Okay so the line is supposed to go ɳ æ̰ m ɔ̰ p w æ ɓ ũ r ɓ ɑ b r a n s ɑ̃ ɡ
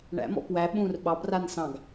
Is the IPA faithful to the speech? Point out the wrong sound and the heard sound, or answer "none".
none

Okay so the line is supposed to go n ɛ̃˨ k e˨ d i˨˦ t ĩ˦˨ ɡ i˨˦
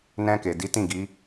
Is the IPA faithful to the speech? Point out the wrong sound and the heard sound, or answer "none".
ɛ̃˨ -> ɛ̃˧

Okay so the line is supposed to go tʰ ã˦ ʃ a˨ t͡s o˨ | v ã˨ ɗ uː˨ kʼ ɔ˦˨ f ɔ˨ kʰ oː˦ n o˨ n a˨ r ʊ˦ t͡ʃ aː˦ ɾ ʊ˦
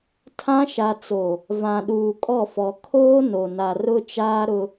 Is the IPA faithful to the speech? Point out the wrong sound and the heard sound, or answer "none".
none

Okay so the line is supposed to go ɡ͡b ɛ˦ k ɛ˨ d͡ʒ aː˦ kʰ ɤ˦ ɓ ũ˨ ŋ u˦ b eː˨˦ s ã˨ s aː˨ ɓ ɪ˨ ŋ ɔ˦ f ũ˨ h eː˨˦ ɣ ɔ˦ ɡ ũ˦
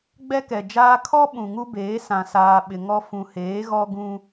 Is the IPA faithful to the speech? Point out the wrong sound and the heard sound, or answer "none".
ɤ˦ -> ɔ˦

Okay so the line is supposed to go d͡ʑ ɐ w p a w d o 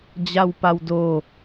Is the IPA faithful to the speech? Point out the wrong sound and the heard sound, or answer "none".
ɐ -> a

